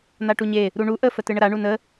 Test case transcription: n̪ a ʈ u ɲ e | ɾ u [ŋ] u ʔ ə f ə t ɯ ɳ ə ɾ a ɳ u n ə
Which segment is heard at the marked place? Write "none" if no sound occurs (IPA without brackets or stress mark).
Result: ɳ